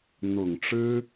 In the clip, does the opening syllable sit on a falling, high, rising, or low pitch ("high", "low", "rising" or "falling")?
low